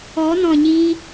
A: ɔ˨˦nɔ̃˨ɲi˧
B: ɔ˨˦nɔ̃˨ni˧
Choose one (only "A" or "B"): A